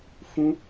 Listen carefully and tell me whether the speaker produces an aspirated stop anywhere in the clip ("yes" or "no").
no